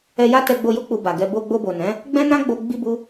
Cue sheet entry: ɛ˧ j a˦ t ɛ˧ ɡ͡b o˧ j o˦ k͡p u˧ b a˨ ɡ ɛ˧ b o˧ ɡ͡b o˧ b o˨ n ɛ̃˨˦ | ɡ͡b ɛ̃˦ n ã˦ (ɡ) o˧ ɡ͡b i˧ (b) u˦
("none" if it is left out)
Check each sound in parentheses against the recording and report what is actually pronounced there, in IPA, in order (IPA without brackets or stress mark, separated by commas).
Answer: ɡ͡b, b